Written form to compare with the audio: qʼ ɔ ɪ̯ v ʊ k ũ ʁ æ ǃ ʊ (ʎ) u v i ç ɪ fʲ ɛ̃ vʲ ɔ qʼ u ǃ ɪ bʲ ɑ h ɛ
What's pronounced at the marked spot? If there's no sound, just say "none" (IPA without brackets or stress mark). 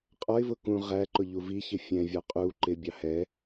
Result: ʎ